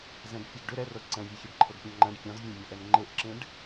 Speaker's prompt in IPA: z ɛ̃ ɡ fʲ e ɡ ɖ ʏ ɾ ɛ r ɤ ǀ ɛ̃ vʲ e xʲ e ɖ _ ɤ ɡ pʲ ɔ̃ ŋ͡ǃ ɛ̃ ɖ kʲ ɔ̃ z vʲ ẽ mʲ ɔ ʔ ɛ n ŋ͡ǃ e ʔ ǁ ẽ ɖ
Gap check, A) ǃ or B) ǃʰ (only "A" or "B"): B